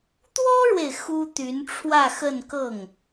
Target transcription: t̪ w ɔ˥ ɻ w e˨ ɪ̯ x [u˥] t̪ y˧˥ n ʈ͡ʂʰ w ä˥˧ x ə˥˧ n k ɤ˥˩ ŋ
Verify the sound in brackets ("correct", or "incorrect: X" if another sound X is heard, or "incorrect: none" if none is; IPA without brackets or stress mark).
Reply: correct